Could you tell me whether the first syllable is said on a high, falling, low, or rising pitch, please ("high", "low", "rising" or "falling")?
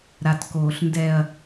low